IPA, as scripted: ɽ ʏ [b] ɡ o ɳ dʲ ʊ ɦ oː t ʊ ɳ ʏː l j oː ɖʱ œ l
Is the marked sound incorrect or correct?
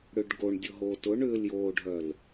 incorrect